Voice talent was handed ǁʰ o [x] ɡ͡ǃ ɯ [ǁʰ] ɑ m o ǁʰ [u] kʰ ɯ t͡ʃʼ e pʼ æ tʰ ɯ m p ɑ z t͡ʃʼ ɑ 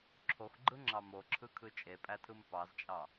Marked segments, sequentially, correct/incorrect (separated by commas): correct, incorrect, incorrect